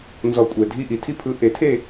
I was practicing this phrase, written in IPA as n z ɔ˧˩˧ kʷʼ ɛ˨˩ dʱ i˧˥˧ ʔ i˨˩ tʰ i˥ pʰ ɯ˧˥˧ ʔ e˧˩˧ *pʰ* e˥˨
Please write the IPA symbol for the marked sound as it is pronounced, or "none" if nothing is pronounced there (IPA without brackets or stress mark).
tʰ